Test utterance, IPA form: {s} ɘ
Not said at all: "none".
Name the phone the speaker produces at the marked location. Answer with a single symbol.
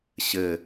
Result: ɕ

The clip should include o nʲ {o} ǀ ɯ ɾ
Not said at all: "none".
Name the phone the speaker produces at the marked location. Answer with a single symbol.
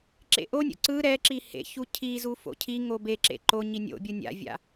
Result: o̰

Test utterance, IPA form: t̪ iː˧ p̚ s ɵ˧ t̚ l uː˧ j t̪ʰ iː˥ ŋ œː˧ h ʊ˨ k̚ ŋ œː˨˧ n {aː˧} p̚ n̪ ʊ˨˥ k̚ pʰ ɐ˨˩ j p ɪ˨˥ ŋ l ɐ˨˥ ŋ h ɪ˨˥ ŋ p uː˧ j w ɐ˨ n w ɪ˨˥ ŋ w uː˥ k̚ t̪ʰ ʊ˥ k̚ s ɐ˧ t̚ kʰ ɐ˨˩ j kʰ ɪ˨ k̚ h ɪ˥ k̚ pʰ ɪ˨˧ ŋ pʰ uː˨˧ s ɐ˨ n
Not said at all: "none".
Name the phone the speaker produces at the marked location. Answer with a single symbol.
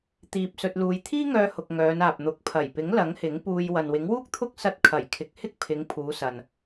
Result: aː˨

